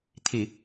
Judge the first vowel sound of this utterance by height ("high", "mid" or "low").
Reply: high